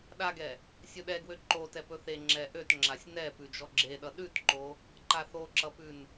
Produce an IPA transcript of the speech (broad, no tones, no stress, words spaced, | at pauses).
ɗaɡɛ | sʲɵɗɛ ɡwøǃotɛ pɵθe ŋ͡ǁɛʔøt ŋ͡ǁasʲnɛ pʉd͡ʒɔɡ͡ǁeɗʌ ɗʉtǃo | ǃaθoǁʌpʉn